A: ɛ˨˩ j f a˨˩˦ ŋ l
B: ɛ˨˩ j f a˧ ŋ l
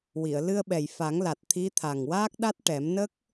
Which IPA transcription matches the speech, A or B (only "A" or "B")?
A